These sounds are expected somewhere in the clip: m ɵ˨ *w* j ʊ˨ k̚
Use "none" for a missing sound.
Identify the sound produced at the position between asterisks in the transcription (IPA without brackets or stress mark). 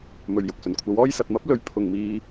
ɥ